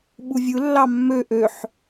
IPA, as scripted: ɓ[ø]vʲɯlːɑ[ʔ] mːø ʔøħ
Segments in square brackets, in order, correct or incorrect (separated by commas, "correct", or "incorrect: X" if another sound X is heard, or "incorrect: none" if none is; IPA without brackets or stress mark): incorrect: u, incorrect: none